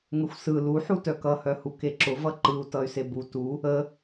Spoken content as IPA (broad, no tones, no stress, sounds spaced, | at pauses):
ŋ ə xʷ s ɯ l u ħ u t œ k ʌ h œ h u k e ǁ ʊ v ʌ ǃ ɯ u̯ t ʌ y̯ s e b u t u | ə